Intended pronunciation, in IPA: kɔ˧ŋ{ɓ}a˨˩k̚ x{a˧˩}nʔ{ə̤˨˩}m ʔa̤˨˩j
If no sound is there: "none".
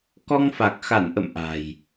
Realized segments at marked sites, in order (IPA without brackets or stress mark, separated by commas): f, a˧˩, ə̰˧˨